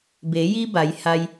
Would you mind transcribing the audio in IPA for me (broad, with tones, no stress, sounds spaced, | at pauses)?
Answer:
b e˩˧ j i˧ b a˩˧ j h a˧ j